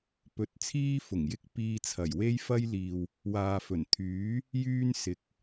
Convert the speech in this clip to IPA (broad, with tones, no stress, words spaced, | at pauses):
pɵ˧t̚t͡sʰiː˥fʊ˨˩ŋjɪ˥k̚ piː˧t͡sʰɐ˨˩jwe˥j fɐ˥jliː˨w | waː˨fɵ˨˩nt̪ʰyː˨˥ | jyː˥nsɪ˨k̚